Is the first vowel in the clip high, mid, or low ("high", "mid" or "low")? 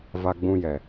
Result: low